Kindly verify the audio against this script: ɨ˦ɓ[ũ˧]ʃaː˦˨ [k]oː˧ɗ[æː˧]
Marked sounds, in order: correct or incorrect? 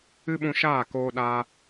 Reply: correct, correct, incorrect

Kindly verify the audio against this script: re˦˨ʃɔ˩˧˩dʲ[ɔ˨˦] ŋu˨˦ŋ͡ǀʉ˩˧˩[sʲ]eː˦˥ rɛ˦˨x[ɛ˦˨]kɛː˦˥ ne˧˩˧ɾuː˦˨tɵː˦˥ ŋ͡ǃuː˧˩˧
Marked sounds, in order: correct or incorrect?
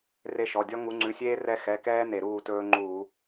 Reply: incorrect, correct, incorrect

